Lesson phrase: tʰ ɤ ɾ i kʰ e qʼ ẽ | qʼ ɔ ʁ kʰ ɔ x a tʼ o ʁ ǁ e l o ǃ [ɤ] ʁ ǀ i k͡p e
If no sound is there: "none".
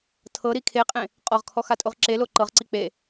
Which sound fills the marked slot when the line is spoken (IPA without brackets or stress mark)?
ɤ